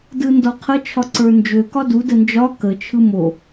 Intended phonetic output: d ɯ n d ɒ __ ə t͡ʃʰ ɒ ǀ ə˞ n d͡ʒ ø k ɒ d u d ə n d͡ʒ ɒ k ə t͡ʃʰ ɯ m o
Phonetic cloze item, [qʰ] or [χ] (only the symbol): qʰ